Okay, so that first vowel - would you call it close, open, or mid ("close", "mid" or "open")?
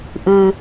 close